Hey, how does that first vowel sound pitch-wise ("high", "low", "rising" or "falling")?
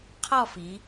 falling